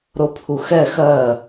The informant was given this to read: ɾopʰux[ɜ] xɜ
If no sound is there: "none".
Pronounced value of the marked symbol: ɛ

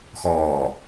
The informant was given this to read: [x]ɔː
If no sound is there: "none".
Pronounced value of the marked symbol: x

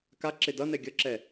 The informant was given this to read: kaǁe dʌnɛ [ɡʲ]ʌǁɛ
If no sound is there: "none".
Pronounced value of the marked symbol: ɡʲ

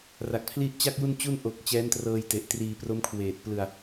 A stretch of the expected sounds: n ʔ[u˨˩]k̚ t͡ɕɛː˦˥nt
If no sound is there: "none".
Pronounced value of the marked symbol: o˨˩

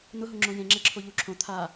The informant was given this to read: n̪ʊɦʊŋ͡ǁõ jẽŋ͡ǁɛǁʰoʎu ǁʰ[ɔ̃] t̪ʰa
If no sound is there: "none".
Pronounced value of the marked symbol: õ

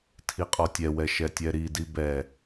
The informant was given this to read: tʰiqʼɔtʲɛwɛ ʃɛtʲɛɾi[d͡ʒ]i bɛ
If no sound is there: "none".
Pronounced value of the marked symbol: d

